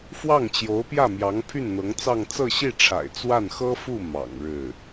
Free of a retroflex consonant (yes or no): no